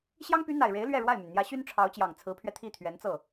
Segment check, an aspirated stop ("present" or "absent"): present